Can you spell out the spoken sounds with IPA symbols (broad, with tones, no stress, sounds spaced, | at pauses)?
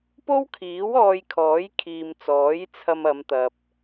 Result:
p o˥ w kʰ iː˨˥ w ɔː˧ j kʰ ɔː˨˥ j kʰ iː˨ m t͡s ɔː˨˥ j t͡sʰ ɐ˧ m ɐ˨˧ m t̪ ɐ˨ p̚